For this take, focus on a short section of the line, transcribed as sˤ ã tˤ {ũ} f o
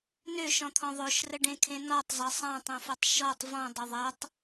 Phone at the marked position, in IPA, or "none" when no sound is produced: õ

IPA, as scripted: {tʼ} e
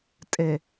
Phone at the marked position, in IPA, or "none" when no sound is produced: tʼ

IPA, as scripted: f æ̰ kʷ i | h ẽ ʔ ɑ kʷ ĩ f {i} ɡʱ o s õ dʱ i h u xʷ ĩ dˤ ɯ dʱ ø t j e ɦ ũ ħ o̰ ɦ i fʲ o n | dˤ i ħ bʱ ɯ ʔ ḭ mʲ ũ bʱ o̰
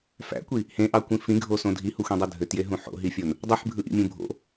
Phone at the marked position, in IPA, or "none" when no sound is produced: ĩ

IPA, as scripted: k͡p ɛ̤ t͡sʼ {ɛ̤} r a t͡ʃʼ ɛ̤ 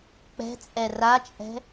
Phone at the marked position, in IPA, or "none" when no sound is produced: ɛ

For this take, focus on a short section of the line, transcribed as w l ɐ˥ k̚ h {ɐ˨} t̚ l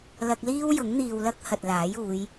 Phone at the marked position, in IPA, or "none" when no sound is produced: ɐ˨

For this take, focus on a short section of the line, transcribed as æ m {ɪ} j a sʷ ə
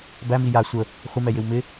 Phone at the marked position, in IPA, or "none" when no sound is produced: i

